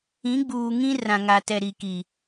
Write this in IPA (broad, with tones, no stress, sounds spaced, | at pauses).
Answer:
ĩ˨˦ ɡ͡b uː˨ ŋ ĩ˦ r ã˨ ŋ a˨ t ɛ˨ ɾ i˨ k i˨